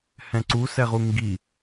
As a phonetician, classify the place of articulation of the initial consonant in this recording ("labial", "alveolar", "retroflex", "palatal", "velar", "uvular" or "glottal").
glottal